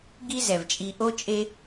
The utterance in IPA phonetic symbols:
ɡi˥zɛ˩vt͡ʃʼi˨ ʔo˥t͡ʃʼe˦

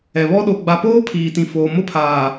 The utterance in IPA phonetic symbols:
ɛ˨βɔ˦ ɗo˨ɡ͡ba˨poː˦ pʰiː˨tĩ˨foː˨ mʊ˦˨pʰaː˨

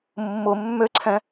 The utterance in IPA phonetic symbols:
mːʊ mːøǀʰɛ̃

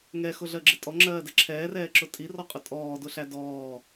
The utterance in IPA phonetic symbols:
ŋɛxʊɮɜɡ͡ǁɪ tʼɔŋ͡ǁɜːdɛ ǁʰɛːrɛːǁʊ tʼirɔqʼʊ tʼɔːdʊɬæ dɔː

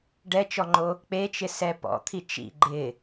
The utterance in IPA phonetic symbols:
ɖɛt͡ʃɔŋ͡ǃo | k͡pet͡ʃɪsɛ pɔ̰t̪ʰi t͡ʃḭ ɡ͡ǃɪ

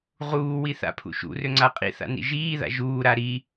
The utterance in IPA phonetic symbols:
ʁuːwi θa̰pʰṵʃṵrø ŋ͡ǀaqʼḭθa̰ nḭʒiːða̰ ʒuːɾa ɾi

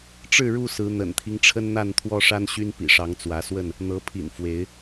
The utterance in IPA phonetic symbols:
ʈ͡ʂɻ̩˥˨ɻu˥˨sɹ̩˨˦ n̪ə̰˨˩nt̪ʰi˦ŋʈ͡ʂʰə˦nn̪a˥˨n t̪ʰwɔ˦ʂa˦nɕy˦n pḭ˨˩ʂɑ˨˦ŋ t͡swä˨˦swə˥˨n | n̪ɤ˨˦pʰḭ˨˩n fwe˨˦ɪ̯

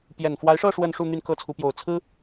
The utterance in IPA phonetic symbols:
pjɛ˨˩nfwa˧˥ɪ̯ʂɤ˥˧ ʂwə˥˧nʂu˥˧ n̪y˥˧nkɤ˥˩ t͡sʰu˧˥pjo˨˩ʊ̯ t͡sʰɹ̩˥

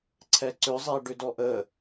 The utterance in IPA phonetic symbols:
ǀʰɛǀʏzˤe ɖʏdɔʔə

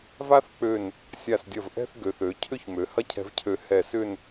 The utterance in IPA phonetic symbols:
va˥θk͡pø˧˩n | sʲa˧˩sdʲɐ˧˩vʔɛ̤˥˧θ ɡø˩˧θø˩˧ cʰʏ˥çmø˩˧ hɐ˥cʰɛ̤˧vcʰø˧˩ hɛ˧˩sʏ˥˧n

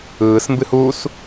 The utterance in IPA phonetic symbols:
ɯːsmbɨ huːs

